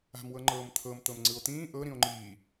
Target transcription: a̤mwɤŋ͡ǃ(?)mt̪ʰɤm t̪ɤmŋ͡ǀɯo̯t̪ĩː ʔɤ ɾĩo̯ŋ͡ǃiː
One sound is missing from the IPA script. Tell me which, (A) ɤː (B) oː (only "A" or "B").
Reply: A